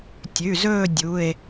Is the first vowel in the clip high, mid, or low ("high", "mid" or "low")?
high